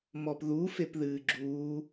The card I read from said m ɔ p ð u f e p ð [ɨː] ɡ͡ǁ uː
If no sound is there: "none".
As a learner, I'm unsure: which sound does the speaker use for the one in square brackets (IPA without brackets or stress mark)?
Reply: ɨː